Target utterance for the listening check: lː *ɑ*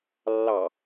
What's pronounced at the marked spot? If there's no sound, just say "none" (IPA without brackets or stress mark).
ɑ